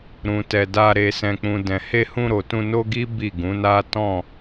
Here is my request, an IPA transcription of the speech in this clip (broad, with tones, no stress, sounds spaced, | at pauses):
ɾ ũ˨ t ɛ˨ d a˧ ɾ e˨ s ɛ̃˨ k͡p ũ˨ d ɛ̃˨ h e˧ h ũ˧ ɾ o˨ t ũ˧ n o˦ ɡ i˦ b i˦˨ ɡ ũ˨˦ n a˦ t ɔ̃˦˨